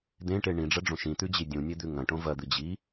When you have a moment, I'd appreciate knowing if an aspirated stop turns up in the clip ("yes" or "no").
no